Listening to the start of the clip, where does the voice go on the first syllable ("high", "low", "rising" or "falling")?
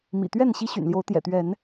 low